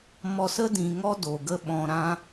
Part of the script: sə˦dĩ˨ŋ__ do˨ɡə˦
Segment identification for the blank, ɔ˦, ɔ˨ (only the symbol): ɔ˦